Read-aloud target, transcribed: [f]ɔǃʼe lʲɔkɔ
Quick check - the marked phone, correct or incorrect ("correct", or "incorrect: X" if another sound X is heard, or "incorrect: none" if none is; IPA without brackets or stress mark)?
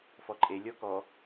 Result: correct